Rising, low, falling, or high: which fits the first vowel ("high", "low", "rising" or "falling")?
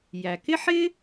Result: low